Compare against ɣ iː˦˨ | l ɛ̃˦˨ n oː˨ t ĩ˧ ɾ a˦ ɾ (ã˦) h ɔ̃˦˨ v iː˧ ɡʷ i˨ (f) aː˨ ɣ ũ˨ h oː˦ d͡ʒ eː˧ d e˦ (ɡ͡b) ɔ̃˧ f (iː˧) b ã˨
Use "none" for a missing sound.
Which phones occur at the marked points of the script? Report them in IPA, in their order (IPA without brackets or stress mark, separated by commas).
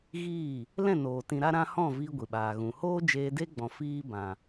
ã˦, ɓ, ɡ͡b, iː˦